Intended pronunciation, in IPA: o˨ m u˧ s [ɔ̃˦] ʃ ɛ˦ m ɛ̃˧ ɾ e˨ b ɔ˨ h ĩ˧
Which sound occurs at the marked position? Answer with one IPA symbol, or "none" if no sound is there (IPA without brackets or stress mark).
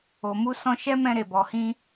ɔ̃˧